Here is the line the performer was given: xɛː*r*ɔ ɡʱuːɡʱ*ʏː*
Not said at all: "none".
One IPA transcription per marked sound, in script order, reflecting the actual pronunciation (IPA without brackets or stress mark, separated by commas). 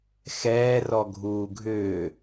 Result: r, ʏː